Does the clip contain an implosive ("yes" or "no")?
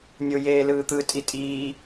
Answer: no